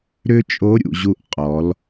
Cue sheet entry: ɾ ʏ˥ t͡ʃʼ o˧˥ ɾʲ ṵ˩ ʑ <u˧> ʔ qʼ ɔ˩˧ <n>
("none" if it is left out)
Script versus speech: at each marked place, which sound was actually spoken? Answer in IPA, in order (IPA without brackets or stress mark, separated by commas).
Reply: u˧, l